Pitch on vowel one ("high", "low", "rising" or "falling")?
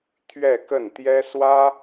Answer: falling